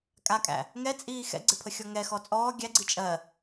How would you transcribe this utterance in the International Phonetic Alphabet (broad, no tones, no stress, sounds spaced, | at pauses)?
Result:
kʼ a kʼ æ̰ | ŋ ɛ t͡sʼ iː x ɛ̰ ɡ͡ǀ e pʰ ə xʲ ɔ ŋ ɛ x ɔ t͡sʼ ɔː ɡʲ æ ɡ͡ǀ i t͡ʃʼ ɜ